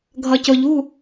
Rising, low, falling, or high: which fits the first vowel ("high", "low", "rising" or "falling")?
low